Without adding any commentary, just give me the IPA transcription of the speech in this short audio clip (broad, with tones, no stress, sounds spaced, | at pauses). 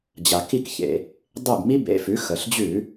d͡ʑ a˩ k i˥˩ k ç ḛ˩ | dˤ e˥˩ b m i˥ b ḛ˩˧˩ f ʉ˩˥ x ə˩ ɬ d͡ʑ ʉ˧˩˧